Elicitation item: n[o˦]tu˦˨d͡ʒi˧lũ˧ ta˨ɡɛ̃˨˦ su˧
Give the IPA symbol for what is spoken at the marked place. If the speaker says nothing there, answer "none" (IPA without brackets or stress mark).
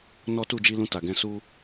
ɔ˦